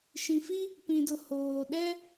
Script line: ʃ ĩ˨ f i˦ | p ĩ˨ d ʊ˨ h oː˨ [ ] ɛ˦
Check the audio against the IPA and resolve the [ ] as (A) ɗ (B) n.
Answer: A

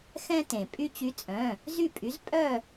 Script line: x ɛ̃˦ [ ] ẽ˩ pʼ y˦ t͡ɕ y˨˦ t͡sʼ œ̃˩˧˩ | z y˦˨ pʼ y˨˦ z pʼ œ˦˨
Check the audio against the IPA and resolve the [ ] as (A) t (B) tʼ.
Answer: A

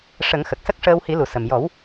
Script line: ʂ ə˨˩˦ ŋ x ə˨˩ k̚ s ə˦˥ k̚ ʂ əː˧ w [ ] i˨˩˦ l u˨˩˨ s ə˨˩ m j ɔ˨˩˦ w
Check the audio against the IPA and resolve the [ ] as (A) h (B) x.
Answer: A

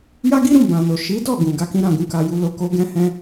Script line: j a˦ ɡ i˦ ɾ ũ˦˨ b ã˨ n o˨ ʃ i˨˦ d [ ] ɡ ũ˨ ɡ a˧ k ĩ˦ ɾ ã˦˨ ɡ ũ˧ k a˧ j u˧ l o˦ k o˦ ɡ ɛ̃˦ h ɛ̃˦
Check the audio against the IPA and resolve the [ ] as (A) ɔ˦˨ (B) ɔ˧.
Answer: A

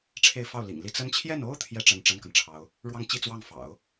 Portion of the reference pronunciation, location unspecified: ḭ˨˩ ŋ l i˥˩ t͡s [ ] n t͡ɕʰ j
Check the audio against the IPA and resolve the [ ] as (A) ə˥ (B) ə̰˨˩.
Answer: A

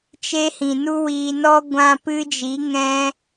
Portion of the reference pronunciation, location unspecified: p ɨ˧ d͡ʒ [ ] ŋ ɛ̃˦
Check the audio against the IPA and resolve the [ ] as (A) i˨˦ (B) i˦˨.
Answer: A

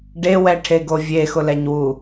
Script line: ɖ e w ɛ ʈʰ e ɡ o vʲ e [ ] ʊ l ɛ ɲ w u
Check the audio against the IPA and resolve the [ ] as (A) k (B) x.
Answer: B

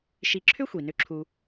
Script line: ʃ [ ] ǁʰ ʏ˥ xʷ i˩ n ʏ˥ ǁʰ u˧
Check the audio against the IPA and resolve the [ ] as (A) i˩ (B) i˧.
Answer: B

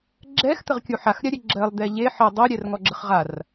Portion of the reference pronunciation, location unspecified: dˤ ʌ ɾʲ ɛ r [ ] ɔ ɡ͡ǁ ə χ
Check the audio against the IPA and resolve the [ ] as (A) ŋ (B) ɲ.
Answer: A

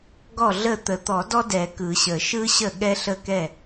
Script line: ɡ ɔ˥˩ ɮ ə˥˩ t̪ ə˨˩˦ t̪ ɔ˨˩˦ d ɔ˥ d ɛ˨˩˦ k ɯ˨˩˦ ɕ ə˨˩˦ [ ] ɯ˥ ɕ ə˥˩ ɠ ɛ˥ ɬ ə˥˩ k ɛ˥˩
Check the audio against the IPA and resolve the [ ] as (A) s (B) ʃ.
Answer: B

